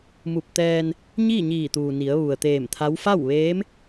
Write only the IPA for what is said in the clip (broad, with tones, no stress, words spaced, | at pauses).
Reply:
mu˧˩p̚t̪ɛː˧n | ɲiː˥˨ɲiː˧˩t̪uː˩ ni˩˧ə̯ʋu˩ə̯t̪eː˧˩mt̪ʰa˧˥w fa˥˨w ʋeː˧˥m